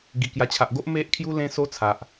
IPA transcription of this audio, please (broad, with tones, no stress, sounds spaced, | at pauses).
ɡ i˨˩ k j a˨˩ t͡ɕʰ a˨ ʔ ɡ o˦ ʔ m e˦ ʔ kʰ j u˦ l ẽ˦ s o˦ t͡sʰ a˨ ʔ